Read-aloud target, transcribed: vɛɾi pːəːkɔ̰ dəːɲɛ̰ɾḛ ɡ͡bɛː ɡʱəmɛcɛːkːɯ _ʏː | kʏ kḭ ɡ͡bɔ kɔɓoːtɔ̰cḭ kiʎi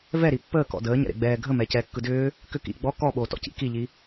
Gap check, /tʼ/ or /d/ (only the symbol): d